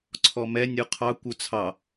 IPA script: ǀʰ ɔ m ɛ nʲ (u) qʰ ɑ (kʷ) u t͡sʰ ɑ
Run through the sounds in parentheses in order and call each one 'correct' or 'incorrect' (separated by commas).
correct, correct